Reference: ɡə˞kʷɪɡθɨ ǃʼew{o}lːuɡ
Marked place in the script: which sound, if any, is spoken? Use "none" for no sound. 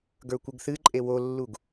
o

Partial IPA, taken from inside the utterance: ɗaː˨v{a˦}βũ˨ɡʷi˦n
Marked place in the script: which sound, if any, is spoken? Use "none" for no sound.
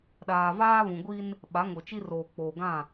aː˦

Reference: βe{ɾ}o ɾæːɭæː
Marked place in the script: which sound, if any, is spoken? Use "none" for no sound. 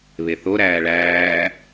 θ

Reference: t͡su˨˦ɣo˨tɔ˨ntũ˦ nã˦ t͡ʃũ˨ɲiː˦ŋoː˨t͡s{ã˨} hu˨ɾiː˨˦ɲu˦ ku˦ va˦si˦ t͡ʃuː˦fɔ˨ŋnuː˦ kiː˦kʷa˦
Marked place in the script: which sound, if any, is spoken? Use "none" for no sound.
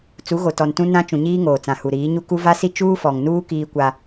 ã˨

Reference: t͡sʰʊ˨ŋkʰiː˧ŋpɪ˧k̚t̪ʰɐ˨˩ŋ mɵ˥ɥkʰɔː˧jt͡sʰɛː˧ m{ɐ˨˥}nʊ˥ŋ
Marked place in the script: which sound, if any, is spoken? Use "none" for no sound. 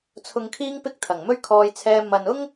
ɐ˨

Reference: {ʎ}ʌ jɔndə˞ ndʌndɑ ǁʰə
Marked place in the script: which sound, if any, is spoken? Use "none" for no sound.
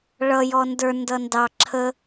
ɭ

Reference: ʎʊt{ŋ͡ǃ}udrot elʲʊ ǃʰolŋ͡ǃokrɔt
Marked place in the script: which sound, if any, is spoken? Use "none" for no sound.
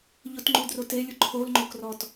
ŋ͡ǃ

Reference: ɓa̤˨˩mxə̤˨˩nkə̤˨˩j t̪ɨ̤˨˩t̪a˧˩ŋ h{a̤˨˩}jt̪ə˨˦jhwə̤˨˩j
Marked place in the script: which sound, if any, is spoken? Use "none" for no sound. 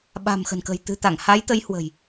a˨˦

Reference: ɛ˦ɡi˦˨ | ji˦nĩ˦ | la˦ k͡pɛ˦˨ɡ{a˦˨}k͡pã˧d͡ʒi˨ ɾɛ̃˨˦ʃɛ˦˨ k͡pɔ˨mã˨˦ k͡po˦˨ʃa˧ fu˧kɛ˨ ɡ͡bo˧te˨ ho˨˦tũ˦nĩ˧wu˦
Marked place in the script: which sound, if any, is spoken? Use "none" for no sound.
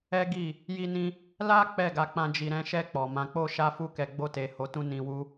a˨˦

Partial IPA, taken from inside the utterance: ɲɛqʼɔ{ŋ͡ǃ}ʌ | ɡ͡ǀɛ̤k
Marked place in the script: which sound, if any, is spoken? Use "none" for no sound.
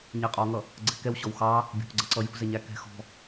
ŋ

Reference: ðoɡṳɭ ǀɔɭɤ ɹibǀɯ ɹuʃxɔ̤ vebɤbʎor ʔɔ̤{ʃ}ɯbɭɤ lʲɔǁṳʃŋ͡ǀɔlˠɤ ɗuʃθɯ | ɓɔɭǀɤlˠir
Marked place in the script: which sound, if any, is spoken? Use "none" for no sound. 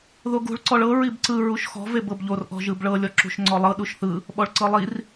ʒ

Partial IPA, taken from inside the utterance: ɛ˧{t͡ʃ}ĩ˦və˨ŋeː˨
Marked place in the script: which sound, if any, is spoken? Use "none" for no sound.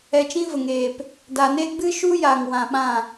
t͡ʃ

